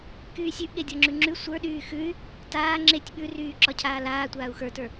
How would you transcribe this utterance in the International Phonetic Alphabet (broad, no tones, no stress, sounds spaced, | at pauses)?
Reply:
k yː sʲ ʉ ʔ ɠ e dʲ ɔ ŋ͡ǁ ʉ ŋ͡ǁ ʉ sʷ ə˞ ɗ yː x ʉ y̯ | t aː ŋ͡ǁ e tʲ ɓ ʉ r yː ǁ ɒ cʰ aː l aː tʷ aː u̯ x ə˞ t ə˞